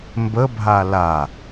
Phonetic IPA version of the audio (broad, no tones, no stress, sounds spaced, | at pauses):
m b ə bʱ a l a